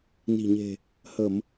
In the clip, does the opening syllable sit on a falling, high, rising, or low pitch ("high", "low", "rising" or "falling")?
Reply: low